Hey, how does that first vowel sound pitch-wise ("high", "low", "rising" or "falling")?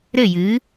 falling